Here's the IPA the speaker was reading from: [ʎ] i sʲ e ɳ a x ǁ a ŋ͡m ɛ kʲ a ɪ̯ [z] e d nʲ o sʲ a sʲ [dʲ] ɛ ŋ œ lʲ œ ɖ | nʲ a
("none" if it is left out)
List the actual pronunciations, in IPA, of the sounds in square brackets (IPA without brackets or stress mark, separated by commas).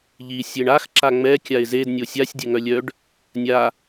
ʎ, z, dʲ